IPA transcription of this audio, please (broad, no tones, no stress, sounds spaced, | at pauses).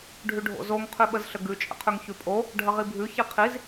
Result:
ɖʱ ʉ ɖʱ o̰ z o ŋ qʰ ʉ ɓ ə z ɬ ə ɡ ʉ t͡ʃʼ ə̰ qʰ ʉ ŋ ç ʉ pʼ o | ɖʱ ə ʁ i bʱ ʉ ç i qʰ i z